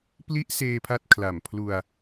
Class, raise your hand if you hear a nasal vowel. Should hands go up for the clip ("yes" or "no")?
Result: no